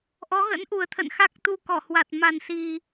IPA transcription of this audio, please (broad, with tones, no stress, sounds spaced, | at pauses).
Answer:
ʔ ɔ˨˦ ɣ ə̰˧˥ n ʔ u˨˩ ə̯ t̪ʰ ə̰˧˨ n x a˦˥ k̚ t̪ u˧ k ɔ˧˩ h w a˨˩ t̚ m a˨˩ n s i˨˩